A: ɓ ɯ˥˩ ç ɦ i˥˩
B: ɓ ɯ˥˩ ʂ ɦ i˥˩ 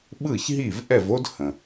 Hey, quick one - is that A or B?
A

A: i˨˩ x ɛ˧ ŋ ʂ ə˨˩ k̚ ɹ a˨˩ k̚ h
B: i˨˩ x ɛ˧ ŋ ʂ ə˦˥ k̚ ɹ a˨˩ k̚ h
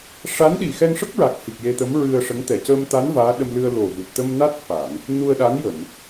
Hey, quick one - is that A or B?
B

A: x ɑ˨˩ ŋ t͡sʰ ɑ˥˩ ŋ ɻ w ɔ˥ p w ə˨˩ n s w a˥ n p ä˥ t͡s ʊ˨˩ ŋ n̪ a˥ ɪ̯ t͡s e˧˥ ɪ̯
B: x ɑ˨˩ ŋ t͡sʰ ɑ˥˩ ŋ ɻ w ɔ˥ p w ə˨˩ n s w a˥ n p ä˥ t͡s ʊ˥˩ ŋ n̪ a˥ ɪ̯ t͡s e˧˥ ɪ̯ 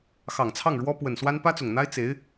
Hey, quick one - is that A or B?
A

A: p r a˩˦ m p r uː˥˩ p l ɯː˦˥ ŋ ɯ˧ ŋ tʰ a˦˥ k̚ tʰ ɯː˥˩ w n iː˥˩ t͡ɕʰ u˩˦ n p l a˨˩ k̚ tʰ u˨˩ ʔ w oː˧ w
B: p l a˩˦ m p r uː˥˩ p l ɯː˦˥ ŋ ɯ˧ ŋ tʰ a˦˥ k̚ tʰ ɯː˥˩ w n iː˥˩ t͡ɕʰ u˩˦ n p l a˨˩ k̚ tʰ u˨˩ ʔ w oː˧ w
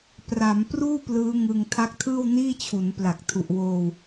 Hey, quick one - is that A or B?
A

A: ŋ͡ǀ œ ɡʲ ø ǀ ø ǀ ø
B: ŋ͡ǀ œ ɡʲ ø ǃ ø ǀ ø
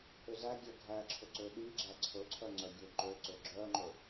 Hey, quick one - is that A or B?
B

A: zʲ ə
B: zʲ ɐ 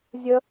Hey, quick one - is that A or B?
A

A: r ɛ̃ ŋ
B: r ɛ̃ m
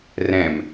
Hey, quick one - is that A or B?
B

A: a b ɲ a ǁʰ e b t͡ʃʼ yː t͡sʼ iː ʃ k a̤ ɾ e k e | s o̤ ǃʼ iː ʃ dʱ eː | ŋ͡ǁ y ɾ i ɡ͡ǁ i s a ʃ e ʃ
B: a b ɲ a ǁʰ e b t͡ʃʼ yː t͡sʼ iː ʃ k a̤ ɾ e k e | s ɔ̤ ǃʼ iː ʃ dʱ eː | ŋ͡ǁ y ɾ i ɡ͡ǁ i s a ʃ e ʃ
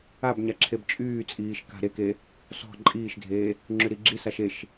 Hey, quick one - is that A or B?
B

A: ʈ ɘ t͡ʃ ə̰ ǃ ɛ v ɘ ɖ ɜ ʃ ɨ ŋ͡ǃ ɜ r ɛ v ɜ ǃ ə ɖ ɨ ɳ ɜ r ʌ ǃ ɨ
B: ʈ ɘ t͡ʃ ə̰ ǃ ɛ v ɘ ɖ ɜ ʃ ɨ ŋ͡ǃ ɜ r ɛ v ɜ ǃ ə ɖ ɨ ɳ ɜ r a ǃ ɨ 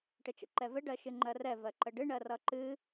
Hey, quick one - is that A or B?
A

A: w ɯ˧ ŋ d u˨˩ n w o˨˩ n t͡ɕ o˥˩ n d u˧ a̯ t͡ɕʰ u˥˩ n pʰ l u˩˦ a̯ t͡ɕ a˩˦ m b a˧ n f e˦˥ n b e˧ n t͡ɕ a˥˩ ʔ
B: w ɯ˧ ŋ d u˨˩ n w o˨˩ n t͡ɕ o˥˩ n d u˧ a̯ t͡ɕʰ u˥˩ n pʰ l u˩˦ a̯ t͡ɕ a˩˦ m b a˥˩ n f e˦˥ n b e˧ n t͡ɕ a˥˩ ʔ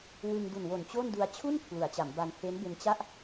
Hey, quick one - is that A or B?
A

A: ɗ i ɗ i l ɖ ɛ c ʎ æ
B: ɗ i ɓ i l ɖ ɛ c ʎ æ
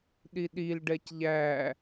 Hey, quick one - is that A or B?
A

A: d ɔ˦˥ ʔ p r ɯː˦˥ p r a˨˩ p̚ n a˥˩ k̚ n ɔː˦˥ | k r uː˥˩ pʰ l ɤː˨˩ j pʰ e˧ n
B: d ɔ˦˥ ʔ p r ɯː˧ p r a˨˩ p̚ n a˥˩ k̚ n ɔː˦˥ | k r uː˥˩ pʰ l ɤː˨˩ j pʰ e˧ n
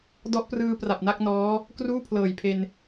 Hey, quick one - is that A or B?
B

